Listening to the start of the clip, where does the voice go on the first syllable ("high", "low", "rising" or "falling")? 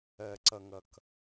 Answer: low